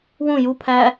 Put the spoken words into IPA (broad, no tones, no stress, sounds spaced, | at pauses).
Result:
w ũ j u pʰ æ